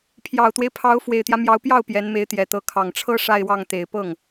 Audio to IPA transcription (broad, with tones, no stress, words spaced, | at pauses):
pʰjɑ˨˩ʊ̯t̪we˦ɪ̯pʰɑ˧˥ʊ̯ fwe˨˩ɪ̯t̪jä˦mjɑ˧˥ʊ̯pjɑ˥˩ʊ̯ pjɛ˧˥nme˧˥ɪ̯t̪jɛ˨˩t̪ɤ˧˥ kʰɑ˨˩ŋʈ͡ʂʰɤ˥ ʂa˥˧ɪ̯wɑ˥˩ŋ t̪e˨˩ɪ̯pɤ˥˩ŋ